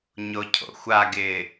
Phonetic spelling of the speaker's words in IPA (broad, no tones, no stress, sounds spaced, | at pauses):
ɲ o cʰ o̰ xʷ a ɡ ɪː